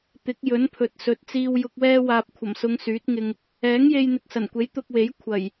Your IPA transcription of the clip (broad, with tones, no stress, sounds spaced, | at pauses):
t̪ ɪ˨˥ k̚ j ɵ˨˥ n pʰ ɵ˨ t̚ s ɵ˨˥ t̚ t͡s iː˧ w j ʊ˧ k̚ w ɛː˥ w aː˧ p̚ kʷʰ ɐ˨˩ m s ʊ˨˧ ŋ s yː˨˥ t̚ ŋ ɪ˧ ŋ | ɛː˨˥ ŋ j e˧ j n̪ ɪ˨ k̚ s ɐ˨˩ n kʷ e˨˥ j t̪ ʊ˧ k̚ w e˨˥ j kʷʰ ɐ˨˩ j